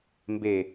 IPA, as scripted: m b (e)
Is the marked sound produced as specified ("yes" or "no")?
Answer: yes